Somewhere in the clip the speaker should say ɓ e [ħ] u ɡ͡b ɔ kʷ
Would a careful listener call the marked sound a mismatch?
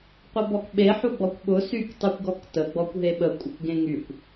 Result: no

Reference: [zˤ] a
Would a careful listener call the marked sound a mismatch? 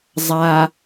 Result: no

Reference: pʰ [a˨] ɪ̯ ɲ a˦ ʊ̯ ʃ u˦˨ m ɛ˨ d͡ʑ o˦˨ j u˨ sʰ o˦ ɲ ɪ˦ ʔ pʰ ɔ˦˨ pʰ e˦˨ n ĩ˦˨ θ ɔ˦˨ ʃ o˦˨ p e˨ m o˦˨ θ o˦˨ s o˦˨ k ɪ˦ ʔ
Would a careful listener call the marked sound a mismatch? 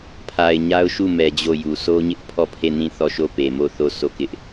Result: no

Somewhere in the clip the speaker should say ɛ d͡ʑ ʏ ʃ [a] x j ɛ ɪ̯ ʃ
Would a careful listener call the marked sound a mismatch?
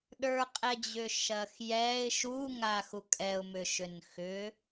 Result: yes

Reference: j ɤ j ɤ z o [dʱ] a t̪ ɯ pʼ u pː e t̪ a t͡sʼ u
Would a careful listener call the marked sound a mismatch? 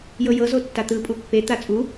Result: yes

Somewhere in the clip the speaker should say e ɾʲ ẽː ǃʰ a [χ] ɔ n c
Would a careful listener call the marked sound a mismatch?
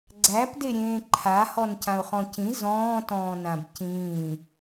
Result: yes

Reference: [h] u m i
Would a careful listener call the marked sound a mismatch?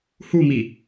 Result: no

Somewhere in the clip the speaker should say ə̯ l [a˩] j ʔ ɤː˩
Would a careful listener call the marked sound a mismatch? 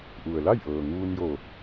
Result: yes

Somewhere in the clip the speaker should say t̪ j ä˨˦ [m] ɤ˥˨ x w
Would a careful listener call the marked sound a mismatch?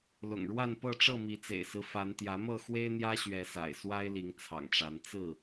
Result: no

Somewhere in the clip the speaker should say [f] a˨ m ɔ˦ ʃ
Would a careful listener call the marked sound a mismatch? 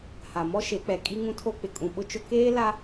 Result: yes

